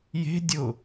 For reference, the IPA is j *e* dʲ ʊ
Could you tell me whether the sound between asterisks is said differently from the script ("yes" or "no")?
yes